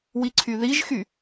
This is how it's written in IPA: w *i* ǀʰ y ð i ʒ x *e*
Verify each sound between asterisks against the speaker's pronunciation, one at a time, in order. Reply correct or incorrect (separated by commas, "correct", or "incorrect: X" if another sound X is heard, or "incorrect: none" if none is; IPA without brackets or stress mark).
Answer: correct, incorrect: y